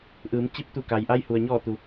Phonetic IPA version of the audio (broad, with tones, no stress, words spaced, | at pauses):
ʔɯː˩˧mt͡ɕi˧p̚t̪u˧˩ ka˩jʔa˧jhu˩ə̯ ɲɔː˧˩t̪u˩